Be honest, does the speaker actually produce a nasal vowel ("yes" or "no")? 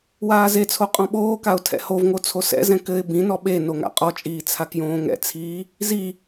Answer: yes